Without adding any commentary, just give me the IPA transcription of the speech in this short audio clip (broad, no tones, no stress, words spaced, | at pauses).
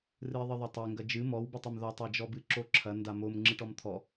rɨɪ̯ðˤɨðˤatˤe ŋɡɐd͡ʒɨ mɔw betˤɘmðɔtˤ ad͡ʒɔbɨ ǁoǁʰɐ ndamom ŋ͡ǁɨʈɔmt̪ʰɔ